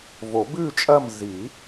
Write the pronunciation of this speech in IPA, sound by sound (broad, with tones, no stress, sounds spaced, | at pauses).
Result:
v o˨˩˦ b ʉ˦˨ t͡ʃʼ ɐ˦˨ m z i˨˩˦